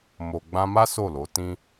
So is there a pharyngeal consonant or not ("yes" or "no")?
no